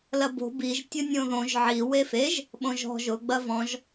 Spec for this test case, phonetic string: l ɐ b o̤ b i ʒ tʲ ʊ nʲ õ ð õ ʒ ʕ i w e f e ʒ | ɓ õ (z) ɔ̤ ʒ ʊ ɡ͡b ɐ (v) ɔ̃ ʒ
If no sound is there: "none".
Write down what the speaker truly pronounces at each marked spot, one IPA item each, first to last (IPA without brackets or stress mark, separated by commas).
ʒ, v